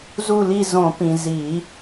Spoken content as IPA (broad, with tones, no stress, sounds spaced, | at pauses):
z u˦˨ l i˦˨ z õ˨˩˦ p ĩ˩ z i˨˩˦